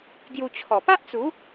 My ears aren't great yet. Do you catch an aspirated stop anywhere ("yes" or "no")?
yes